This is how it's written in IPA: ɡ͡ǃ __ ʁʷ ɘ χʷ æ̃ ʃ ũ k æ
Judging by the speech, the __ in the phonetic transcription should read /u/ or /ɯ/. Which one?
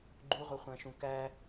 u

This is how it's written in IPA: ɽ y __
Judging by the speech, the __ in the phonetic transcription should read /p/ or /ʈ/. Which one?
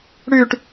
ʈ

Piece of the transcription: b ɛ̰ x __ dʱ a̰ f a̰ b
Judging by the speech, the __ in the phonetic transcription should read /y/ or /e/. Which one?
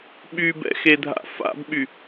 e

